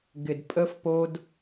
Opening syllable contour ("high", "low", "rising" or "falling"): low